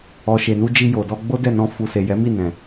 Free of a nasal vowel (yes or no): no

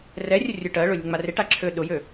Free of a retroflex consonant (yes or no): no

